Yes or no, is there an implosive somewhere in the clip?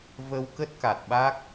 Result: yes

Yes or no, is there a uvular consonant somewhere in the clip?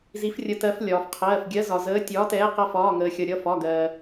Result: yes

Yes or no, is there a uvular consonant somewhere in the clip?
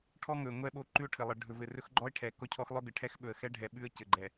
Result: no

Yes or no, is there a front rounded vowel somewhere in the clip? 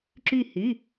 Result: yes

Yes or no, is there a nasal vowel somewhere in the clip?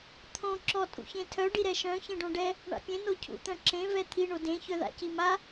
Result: yes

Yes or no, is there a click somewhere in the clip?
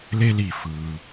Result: no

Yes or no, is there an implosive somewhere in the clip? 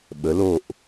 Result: yes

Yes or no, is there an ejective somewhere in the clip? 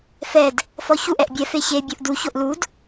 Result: no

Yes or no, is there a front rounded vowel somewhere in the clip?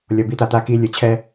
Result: no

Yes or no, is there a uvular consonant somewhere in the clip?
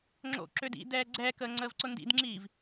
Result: no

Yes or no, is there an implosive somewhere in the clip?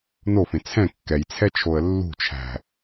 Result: no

